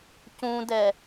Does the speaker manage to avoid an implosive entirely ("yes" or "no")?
yes